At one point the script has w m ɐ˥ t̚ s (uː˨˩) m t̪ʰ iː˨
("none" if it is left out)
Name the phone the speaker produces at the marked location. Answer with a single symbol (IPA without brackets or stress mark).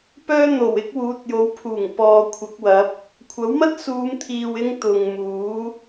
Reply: uː˨˧